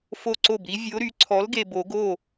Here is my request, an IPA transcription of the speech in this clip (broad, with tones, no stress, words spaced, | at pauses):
fo˥˩ǀo˥˩bɾi˧˥ vʲo˧˥ɾy˩˥ ǀʰɔ˩˥lɡe˨˩ bo˨˩˦ɡo˥˩